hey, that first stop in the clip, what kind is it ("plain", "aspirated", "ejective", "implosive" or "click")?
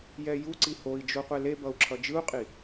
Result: click